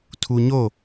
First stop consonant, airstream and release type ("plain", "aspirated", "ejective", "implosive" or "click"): aspirated